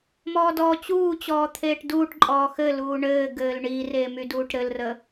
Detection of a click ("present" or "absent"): present